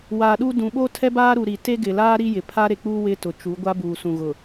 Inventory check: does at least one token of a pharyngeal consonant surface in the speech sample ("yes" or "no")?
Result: no